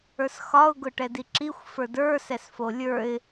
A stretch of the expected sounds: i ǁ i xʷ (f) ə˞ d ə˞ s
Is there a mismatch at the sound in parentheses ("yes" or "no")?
no